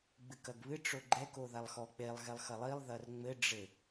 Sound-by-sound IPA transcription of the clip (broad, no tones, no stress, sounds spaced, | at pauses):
ɡ͡b ɨ k ɐ ɡ β ɨ ʈ͡ʂ o ɡ͡ǃ ɛ k o ð a lˠ x ɔ k͡p e lˠ ɣ ɛ lˠ x ɐ lˠ i lˠ ð ɐ r ŋ͡m ɘ ɖ͡ʐ ɘ